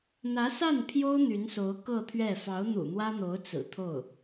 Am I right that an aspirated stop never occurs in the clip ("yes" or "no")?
no